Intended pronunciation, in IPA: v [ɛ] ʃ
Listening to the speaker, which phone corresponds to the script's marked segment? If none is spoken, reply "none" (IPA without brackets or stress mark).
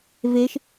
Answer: e